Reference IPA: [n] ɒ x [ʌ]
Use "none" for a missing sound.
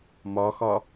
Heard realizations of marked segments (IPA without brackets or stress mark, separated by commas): m, ɒ